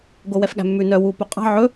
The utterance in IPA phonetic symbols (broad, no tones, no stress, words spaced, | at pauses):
ɡowɛfɠæ̤mːʉ nœ wu pɵqʼɑ̤ ʕɵ